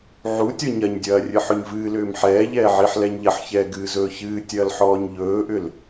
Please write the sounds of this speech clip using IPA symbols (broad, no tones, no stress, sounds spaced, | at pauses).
ʕ u tʲ ɔ ɲ ɐ ɲ dʲ ɐː rʲ ɨ ħ ɵ ɲ v ɨː l ʏː m ħ ɛː ʎ ɛː ʕ i ħ l ɛ ɲ ʎ ɐ ħ ç ɛː ɡ ɨː z ɵː ç ɨː tʲ ɐː l ħ ɔː ɲ ʎ ɵː ʔ ʏ l